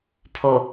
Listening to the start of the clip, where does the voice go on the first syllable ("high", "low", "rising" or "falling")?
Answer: low